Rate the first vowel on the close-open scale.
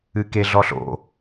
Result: close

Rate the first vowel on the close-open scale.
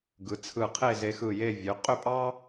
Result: close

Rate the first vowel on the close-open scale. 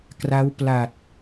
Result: open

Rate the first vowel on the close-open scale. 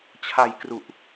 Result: open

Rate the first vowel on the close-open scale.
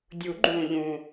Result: close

